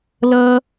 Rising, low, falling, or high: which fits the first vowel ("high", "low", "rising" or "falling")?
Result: high